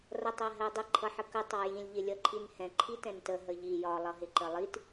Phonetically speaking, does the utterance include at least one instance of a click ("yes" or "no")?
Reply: yes